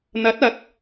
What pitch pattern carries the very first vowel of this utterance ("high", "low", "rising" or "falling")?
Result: rising